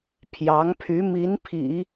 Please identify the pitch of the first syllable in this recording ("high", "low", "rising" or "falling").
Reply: rising